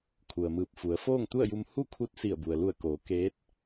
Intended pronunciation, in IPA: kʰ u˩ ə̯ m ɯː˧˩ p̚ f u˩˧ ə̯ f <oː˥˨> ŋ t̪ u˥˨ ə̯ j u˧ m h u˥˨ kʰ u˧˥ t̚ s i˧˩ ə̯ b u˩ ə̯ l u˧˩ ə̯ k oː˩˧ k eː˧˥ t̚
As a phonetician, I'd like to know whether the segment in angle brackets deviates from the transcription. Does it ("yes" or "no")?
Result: no